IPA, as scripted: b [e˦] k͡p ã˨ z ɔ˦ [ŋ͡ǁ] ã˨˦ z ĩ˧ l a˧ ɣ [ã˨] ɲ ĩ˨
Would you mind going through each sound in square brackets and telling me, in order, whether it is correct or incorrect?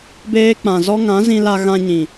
incorrect, incorrect, incorrect

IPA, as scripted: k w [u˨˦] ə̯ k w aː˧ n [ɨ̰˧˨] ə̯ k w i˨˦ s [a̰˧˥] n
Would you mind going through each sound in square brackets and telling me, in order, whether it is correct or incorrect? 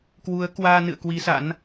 correct, correct, correct

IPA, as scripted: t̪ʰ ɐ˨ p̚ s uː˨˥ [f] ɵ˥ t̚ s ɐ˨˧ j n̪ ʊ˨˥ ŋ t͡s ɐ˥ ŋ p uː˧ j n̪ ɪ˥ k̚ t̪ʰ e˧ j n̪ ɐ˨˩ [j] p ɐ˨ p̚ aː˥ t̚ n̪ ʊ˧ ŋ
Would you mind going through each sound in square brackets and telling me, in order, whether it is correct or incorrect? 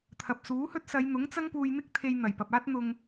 incorrect, correct

